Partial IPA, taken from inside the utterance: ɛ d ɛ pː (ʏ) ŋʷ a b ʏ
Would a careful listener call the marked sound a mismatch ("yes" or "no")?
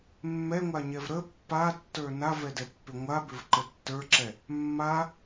no